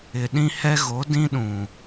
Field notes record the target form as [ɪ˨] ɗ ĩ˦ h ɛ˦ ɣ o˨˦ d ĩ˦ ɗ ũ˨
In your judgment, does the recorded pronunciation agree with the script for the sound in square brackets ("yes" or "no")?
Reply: yes